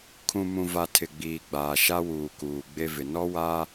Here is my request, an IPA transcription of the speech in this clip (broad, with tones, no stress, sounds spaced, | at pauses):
kʰ ũ˨ m ũ˨ v a˨ tʰ ɪ˨ ɡ͡b iː˨ ɡ͡b aː˨ ʃ a˦ w uː˨ k uː˨ ɡ͡b e˦ v ɪ˨ n ɔ˦ w a˦